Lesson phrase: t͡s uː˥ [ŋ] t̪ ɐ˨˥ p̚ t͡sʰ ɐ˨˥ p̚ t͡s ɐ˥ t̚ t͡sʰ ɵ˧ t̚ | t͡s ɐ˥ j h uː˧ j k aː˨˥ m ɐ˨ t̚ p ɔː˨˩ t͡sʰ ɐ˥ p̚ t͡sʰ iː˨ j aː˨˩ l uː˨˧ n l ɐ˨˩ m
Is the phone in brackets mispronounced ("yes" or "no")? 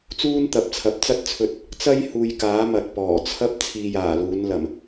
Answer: yes